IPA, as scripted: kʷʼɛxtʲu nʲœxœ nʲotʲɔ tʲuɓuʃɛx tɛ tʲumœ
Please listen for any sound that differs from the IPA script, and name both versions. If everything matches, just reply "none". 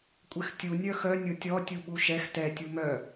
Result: none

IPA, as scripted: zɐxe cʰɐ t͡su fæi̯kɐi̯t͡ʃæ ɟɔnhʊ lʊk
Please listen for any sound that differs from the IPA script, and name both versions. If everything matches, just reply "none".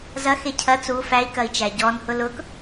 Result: none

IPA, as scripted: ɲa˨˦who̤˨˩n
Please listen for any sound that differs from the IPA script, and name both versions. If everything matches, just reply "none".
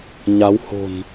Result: none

